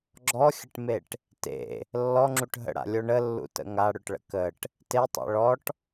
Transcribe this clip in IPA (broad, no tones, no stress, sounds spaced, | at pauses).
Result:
ɡ͡ǁ ɔ xʲ ə ʈ m e ʈ | t ḛ | lː ɔ ŋ͡ǁ u ʈ ɦ ə̰ ɽ a̰ lʲ o ɳ ə lː ṵ t ə̰ ŋ a ɽ ø ʈ ɭ ə̰ k ə ʈ | t e tˤ ḛ ɭ ɔ ʈ